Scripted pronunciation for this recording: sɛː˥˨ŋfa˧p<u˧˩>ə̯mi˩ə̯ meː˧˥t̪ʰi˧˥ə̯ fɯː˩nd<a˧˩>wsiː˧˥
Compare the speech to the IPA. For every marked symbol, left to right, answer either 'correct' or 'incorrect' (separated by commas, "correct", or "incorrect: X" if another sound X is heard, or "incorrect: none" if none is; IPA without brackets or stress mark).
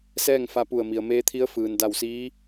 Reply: correct, correct